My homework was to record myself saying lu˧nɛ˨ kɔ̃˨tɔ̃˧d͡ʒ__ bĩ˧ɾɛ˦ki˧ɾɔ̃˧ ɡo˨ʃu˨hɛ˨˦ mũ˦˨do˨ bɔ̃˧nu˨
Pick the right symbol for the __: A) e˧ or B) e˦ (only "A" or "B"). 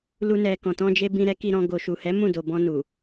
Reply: A